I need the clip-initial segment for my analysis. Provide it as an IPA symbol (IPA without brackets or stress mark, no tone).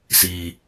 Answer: s